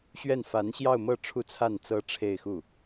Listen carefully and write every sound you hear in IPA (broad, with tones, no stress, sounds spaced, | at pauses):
ɕ ɥ ɛ˥˩ n f a˧˥ n ɕ j ɑ˥˧ ʊ̯ m ɤ˥˧ ʈ͡ʂʰ u˥˧ t͡sʰ a˥˩ n t͡s ɤ˥ ʈ͡ʂʰ e˥˧ ɪ̯ x u˥˩